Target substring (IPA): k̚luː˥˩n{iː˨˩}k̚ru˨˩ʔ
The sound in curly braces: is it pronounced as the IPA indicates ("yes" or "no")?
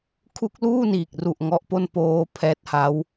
yes